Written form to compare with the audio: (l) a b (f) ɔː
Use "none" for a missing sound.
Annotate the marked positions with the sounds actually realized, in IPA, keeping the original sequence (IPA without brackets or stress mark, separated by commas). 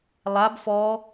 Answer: lˠ, f